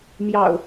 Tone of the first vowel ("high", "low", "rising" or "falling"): low